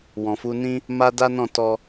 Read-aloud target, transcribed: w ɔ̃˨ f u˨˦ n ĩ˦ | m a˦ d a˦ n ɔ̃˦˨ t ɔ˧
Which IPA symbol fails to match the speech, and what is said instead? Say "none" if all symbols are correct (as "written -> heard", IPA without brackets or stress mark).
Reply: none